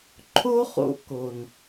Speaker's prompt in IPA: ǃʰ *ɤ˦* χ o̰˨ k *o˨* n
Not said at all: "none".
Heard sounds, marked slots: o˦, o˨

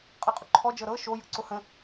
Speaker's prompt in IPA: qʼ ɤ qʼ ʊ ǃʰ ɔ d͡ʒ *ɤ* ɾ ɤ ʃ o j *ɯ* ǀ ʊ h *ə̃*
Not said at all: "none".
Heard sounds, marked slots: ɤ, ɯ, ə̃

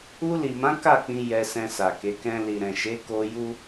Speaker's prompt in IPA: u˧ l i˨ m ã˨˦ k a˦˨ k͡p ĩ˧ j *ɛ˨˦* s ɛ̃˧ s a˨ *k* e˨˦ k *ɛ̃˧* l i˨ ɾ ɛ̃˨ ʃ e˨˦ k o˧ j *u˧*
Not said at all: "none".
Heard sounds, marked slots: ɛ˧, k, ɛ̃˧, u˦

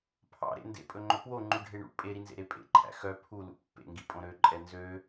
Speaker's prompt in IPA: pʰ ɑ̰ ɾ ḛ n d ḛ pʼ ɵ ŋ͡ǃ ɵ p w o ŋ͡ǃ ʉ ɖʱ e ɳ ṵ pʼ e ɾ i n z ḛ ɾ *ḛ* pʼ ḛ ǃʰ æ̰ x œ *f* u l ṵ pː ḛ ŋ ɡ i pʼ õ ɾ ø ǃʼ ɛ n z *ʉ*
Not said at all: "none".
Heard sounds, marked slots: e, pʰ, ø

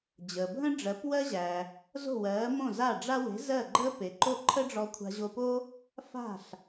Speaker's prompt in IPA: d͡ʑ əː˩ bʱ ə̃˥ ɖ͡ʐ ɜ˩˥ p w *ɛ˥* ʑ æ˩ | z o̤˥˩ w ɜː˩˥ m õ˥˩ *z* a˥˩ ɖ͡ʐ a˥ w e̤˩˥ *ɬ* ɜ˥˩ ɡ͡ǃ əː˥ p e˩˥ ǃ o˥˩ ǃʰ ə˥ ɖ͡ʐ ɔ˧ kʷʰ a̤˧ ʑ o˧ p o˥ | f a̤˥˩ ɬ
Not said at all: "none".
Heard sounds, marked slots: ɜ˥, z, z

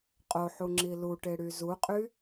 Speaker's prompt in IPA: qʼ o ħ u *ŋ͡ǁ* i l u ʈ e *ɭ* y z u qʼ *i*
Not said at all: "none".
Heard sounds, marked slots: ŋ͡ǁ, ɽ, y

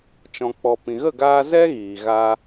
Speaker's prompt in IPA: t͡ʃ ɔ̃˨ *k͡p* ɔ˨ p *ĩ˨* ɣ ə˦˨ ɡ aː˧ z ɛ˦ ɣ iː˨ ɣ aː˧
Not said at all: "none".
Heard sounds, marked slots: k͡p, ĩ˨

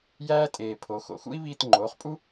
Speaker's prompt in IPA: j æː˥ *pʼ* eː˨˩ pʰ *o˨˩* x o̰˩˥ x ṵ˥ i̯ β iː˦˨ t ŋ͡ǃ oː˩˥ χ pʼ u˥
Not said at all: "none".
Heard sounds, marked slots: tʼ, o˩˥

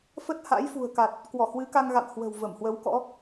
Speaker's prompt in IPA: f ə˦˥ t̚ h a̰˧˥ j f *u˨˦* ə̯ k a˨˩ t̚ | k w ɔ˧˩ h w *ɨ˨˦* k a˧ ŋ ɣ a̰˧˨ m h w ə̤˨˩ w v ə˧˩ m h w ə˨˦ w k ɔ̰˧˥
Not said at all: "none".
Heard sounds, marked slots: ṳ˨˩, ɨ˨˦

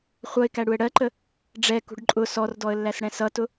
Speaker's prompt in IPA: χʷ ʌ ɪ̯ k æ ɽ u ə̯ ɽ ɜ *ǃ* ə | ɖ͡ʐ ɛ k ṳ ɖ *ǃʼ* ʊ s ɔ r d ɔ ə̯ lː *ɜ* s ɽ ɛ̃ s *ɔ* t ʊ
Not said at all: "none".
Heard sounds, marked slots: ǃ, ǃʼ, æ, ʌ

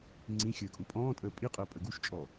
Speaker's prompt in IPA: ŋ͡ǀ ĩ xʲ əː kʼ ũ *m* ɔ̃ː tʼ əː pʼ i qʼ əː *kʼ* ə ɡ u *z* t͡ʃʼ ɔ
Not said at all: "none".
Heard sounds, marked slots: pʼ, pʼ, ʃ

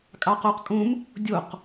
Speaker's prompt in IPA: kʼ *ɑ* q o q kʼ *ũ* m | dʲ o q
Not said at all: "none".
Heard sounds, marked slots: ɑ, ũ

